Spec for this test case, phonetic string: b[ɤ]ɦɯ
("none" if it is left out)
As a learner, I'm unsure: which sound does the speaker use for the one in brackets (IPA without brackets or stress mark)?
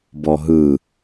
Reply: ɔ